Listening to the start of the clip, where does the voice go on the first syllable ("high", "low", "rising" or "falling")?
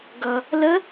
low